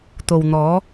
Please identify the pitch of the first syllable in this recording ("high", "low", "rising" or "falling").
low